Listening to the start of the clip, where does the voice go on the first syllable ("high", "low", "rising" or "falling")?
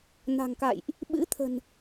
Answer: low